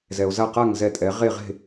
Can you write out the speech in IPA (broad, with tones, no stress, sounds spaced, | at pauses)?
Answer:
z ɛ˧ o̯ z a˥˧ q a˥˧ ŋ z ɛ˥˧ tʼ ɛ˧˥ ʁ e˥˧ ʁ e̤˥˧